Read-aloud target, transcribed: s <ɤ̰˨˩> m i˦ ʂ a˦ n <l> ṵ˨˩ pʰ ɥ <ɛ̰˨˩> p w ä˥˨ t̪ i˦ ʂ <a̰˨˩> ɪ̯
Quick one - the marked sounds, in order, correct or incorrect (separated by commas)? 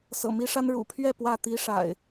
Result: correct, incorrect, incorrect, correct